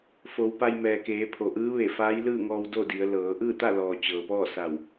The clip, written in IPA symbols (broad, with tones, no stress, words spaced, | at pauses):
fo˩˧wpa˧j mɛː˩keː˩˧pʰo˩ ʔɯː˧˥ʋe˧˩faː˧˥j lɯː˥˨ŋɔː˧w do˥˨ di˩˧ə̯lɤː˩˧ ʔɯː˥˨t̪a˥˨lɔː˩ t͡ɕɤː˩pɔː˥˨sa˧˩w